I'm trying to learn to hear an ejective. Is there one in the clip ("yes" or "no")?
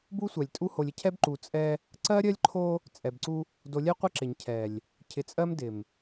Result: yes